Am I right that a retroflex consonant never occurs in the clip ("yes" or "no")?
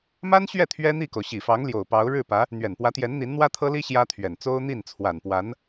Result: no